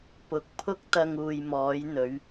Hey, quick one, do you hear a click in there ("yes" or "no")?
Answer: no